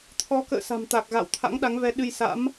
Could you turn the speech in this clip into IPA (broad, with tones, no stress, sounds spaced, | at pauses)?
t̪ʰ ɔ˨˦ k ə̰ː˧˨ s a̤˨˩ m t̪ a˨˩ k̚ ɣ a̰˧˨ w t̪ʰ a̰˧˥ ŋ ɗ a˨˦ ŋ v ɛ˨˦ ɗ ɨ˧ j s a̰˧˥ m